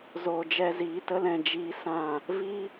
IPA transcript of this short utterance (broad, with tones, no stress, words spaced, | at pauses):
zoː˨d͡ʒɛ˧ ziː˨˦tə˦l ɛ̃˨d͡ʒiː˧ sã˦˨ | vi˦